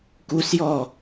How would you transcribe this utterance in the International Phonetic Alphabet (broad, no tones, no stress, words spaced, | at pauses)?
kusjɔ